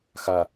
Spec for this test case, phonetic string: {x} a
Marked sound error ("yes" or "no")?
no